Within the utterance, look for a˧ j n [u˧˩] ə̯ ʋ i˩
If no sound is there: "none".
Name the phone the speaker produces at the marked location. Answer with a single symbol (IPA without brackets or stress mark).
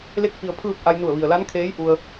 u˧˩